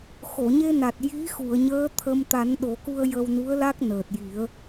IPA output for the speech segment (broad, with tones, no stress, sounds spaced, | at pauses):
x o˨˩˨ ɲ e˧ n a˨˩ t̚ j i˧˥ x u˨˩˨ ə̯ ɲ əː˧˥ t̪ʰ ə˧ m t̪ a˨˩˦ n ɗ o˨˩˦ k u˧ ə̯ j ə˧ w n u˧˥ ə̯ l a˦˥ k̚ n əː˨˩ t̚ j i˨˩˦ ə̯